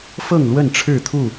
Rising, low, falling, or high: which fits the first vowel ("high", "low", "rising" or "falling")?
falling